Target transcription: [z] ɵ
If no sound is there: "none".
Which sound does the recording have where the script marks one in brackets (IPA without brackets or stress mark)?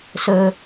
s